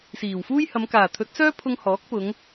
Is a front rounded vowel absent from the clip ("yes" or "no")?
no